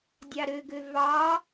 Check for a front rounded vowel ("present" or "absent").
present